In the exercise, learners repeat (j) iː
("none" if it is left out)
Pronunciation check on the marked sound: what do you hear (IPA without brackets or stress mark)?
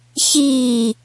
ç